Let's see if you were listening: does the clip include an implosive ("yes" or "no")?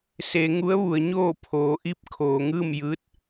no